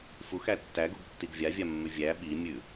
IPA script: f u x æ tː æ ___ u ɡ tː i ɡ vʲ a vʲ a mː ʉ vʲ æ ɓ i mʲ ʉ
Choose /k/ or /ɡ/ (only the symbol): ɡ